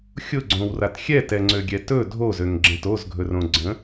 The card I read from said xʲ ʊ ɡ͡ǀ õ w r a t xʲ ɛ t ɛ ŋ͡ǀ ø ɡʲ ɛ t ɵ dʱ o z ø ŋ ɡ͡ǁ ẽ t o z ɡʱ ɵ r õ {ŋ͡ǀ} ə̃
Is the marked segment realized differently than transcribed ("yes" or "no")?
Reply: yes